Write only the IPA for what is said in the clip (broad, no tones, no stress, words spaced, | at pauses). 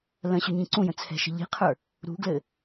lə̃ɕʏ ɲĩǀũjə̃ t͡sʰɛ̤ʃə̤ʎi̤qʰə˞ | ɾṳɡlɘ